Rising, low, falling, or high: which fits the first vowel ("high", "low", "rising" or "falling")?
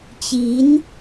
rising